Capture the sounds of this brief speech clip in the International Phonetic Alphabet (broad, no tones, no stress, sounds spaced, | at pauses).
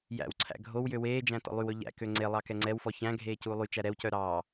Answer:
j æ̰ w ǀʰ æ̰ ɡʱ o w j ø w eː d͡ʒ æ̃ t ɔ̰ lˠ y w ɵ ʎ æ̰ k ø ŋ͡ǀ e lˠ ɑ k ɛ ŋ͡ǀ ɛ w f ɔ ç æ̃ ɡʱ eː c uː lˠ y t͡ʃ æ ɾ ɛ w c œ ɾ ɑ